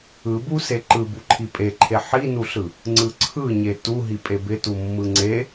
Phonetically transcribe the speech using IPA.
ɯ b u s e ǃ ɯ b u ǃʰ i pʼ e ǃʰ e ħ i n u ɬ ɯ | ŋ͡ǀ ɯ ǀʰ ɯ ɲ e t u ɦ i pʼ e b ɪ t u mː ɯ ŋ͡ǀ e

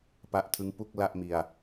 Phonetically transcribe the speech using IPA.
p a˦˥ ʔ tʰ ɯ˦˥ ŋ p u˥˩ k̚ l a˥˩ ʔ m i˧ a̯

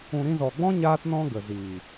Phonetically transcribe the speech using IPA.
ũ˨ ɾ ĩ˧ z ɔ˨ ɡ͡b ɔ̃˦ ɲ aː˦ t n ɔ̃˦ ɡ ə˨ z iː˨

